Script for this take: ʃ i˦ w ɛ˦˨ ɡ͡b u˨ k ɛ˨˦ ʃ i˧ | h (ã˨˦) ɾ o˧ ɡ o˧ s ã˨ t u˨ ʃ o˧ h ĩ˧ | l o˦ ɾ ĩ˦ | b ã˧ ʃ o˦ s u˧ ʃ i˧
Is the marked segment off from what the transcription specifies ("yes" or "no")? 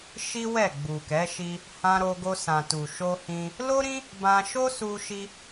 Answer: yes